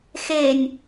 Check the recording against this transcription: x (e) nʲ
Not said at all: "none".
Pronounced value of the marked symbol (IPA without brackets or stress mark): e